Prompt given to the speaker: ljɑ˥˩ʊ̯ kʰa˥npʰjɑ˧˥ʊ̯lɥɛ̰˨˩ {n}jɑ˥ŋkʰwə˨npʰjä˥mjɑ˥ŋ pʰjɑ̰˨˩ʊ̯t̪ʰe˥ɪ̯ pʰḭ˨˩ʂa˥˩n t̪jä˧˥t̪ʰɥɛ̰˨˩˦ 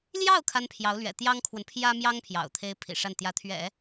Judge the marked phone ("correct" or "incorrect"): incorrect